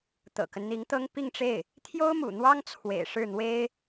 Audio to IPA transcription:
t̪ ɤ̰˨˩ k ə˦ n n̪ i˧˥ ŋ t̪ ɤ˥ ŋ p i˥˧ ŋ ʈ͡ʂ e˥˩ ɪ̯ | t̪ʰ j o˥ ʊ̯ m ṵ˨˩ n̪ w ɑ˥ ŋ t͡sʰ w ḛ˨˩ ɪ̯ ʂ ɻ̩˥˩ n̪ w e˥ ɪ̯

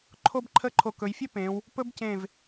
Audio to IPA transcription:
ǃʰ o˥ b ǃʰ ə˥˧ ǃʰ o˧˩ k ɵ˩˧ j fʲ ɵ˥ p ẽ˩˧ w | p ɵ˥ b c ẽ˧˩ v

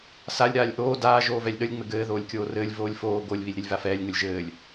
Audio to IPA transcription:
s a lʲ ɾ aː lʲ ʔ oː d aː ʒ oː v ɛ lʲ ɗ ə lʲ ŋ͡m ɘ ɡ ɘː ð oː lʲ kʲ oː r ɘː lʲ v oː lʲ f oː ɡ o lʲ β i lʲ ɾ i lʲ v a f ɛː lʲ ŋ ə lʲ ʒ ɘː lʲ

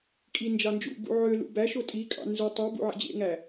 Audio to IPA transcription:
kʼ i n d͡ʒ ɑ n d͡ʒ ṵ b ṵ ʕ ø l ṵ b æ ʃ o tʼ i kʼ ɑ̰ n z u tˤ u b ṵ ʕ ḛ d͡ʑ ḛ ŋ æ

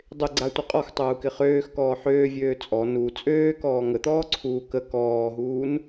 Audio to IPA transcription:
dˤ ɪ ɡ͡ǀ a tʷ ə qʼ ɔ x tˤ uː k ɪ χ øː x k ɔː ħ øː vʲ øː t͡sʼ ɔ n u t͡sʼ øː k ɔː ŋ ə t̪ ɔː ǀʰ uː k ə k ɔː ɦ uː n

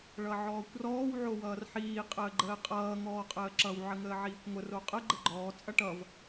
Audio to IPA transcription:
ɭ ʌ ʕ ɔː kʷ r ɔː w ʕ o w ʌː r ħ iː qʼ əː ɡ͡ǃ əː qʼ ʌː ŋ ɔː qʼ əː ǁ ʌ w ʕ ə ŋ əː ʕ iː kʷ ŋʷ ə r o qʼ ə ɡ͡ǃ ə ɡ͡ǃ ɔː t͡sʼ ʌ ʈ ʌ v

